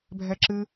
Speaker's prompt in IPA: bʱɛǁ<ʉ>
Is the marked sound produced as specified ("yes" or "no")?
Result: no